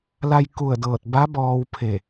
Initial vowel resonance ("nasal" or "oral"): oral